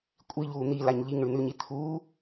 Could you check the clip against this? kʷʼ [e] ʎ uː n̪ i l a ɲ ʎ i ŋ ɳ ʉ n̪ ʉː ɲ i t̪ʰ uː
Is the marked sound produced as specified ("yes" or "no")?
no